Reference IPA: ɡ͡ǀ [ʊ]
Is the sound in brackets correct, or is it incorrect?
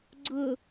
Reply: correct